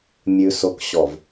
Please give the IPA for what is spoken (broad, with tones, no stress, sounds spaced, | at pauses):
mʲ ʉ˨ s o˨ k ɕ ɔ˨ v